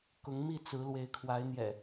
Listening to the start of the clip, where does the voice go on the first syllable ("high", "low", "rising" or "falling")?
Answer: rising